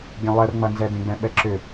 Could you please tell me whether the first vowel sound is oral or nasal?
nasal